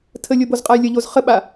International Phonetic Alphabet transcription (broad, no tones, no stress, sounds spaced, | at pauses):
tʰ ə lʲ o b o z qʼ a j lʲ ə ʎ o z χ ə ɓ a